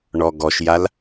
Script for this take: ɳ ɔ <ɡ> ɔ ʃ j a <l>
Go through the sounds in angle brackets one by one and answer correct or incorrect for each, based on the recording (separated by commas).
correct, correct